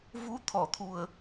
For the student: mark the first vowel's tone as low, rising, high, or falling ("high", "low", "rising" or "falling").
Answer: rising